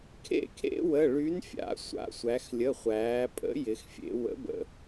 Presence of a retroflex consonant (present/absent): present